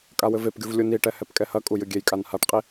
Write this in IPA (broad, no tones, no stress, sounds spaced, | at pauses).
kʼ a w ɘ v e p ɡʲ u v lʲ u n i ʈ ɛ h ɛ p kʼ ɛ h ɐ kʼ u j ɨ ɡʲ e j kʼ a n h a ʈ qʼ i